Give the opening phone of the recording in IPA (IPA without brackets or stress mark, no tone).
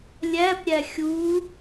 lʲ